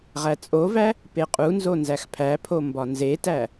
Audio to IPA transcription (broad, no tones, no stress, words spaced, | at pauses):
ʁæt͡sʼovæ | peqʼunzo nzæxpʰæpʰo mbɒnzetæ